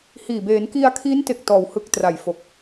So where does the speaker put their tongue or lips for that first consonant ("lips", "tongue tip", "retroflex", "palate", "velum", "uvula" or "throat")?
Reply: throat